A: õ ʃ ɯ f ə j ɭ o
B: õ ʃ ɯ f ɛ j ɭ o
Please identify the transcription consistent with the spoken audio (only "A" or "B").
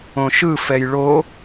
B